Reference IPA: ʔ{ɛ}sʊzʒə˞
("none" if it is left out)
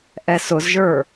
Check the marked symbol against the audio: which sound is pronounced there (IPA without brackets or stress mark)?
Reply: ɛ